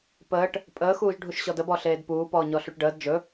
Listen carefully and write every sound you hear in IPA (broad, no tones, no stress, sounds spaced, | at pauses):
p əː ʈ | pʼ əː x uː ʒ ɖʱ u ʃ ɕ ɔ d ə b ɔ ɬ eː d p uː p ɔː ɲ ɔ ɬ u ʈ ɖ əː d d͡ʒ ɵ